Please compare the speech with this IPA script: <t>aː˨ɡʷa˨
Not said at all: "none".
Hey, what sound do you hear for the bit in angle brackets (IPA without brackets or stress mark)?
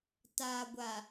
t